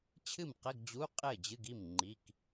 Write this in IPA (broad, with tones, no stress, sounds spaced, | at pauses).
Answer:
t͡ɕʰ ɨ˥˩ m q ɘ˧˥˧ ɡ d͡ʑ u˧˥˧ qʼ ɘ˥˩ d͡ʑ ɨ˧˥˧ ɡ i˥˩ m ŋ͡ǃ i˧˥˧ k